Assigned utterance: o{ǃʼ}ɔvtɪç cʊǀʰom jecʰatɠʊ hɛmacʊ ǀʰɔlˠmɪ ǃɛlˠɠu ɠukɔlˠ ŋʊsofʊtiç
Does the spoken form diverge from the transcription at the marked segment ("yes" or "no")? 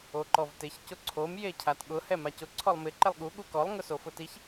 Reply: yes